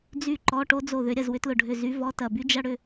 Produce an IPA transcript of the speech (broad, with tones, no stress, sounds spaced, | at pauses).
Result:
d͡z y˥˨ ǃ ɔ˧˥˧ ʈ o˥ d͡z o˥˨ ð ʏ˧˥ ɾʲ ɐ˥˨ z w ʏ˧˥ t l ʊ˧˩ ɖʱ ʏ˧˩ z y˧˥ v ɔ˧˥˧ t ɐ˧˩ b y˥ d͡ʒ ɐ˥ ɽ ʏ˥˨